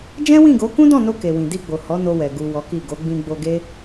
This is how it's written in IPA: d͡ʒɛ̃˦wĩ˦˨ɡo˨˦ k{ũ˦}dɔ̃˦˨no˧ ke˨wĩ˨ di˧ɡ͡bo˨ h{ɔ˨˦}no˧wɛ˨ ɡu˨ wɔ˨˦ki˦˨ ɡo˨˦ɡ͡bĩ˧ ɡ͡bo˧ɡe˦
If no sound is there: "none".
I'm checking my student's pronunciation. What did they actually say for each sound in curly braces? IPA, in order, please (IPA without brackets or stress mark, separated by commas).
ũ˦, ɔ˨˦